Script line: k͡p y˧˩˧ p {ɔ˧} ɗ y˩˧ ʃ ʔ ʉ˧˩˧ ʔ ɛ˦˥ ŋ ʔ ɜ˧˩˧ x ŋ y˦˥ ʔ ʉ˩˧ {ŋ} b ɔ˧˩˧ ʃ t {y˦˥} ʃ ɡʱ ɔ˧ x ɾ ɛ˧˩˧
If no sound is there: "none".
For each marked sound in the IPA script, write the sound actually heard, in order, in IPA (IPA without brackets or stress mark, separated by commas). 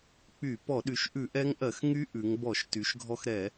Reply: ɔ˧˩˧, ŋ, y˩˧